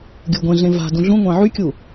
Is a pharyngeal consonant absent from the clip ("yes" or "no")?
no